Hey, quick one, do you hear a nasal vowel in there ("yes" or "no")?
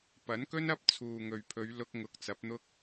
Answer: no